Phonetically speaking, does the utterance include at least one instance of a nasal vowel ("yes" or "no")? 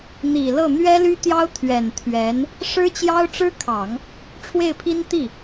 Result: no